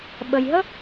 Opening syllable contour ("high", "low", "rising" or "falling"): low